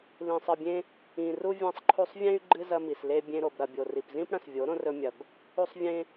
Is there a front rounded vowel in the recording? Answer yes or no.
yes